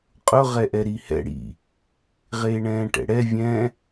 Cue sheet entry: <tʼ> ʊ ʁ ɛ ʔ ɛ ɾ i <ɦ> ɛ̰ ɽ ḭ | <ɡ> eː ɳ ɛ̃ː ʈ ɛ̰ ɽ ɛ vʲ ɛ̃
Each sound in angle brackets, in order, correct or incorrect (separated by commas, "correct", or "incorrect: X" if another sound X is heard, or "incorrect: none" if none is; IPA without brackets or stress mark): incorrect: qʼ, incorrect: h, incorrect: ʁ